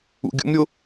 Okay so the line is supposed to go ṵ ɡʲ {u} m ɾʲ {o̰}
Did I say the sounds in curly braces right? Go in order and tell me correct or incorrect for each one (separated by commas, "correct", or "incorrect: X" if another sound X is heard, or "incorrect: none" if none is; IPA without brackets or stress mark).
incorrect: ṵ, incorrect: o